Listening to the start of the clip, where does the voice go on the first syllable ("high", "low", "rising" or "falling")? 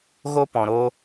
high